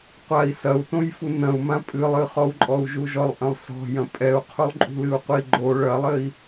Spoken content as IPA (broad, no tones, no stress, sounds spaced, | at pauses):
qʷ a i̯ s ɐ u̯ t õ j f u n ɐ̃ u̯ m ã pʼ ɨ lˠ ɨ χ ɔ u̯ ǃʼ ɔ u̯ ʒ u ʒ ɔ lˠ ʔ ɐ̃ lˠ s ɔ̤ j ɐ̃ pʼ ɛ u̯ qʰ u lˠ ǃʼ ṳ l ɨ u̯ qʷ i ɡ͡ǃ o ɭ ɐ lˠ ɘ i̯